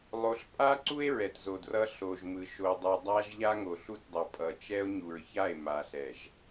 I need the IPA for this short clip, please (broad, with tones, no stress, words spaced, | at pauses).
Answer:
lˠo˨ɬpʼa˦ǀu˦e̯ ɹɛ˨tzo˨drʌ˦ ɬo˨ʒmɯ˨ ʃo˨dˤʌ˨ dˤa˦ʒ ʎa˦ŋo˨ɬu˦tdˤʌ˨ pʼʌ˨t͡ʃɛ˦o̯ɲu˨ɹça˦˨e̯ ma˨ɬɛ˨ʒ